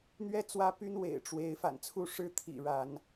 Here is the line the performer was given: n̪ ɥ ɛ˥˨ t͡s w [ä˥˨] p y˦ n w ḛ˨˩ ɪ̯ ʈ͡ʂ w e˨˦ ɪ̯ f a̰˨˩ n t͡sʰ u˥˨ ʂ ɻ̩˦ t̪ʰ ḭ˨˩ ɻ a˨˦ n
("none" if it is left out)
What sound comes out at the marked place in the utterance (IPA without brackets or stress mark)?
ä˦